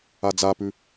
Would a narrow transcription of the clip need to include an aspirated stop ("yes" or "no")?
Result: no